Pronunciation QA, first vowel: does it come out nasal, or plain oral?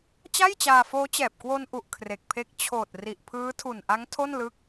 oral